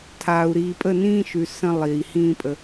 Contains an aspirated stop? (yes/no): yes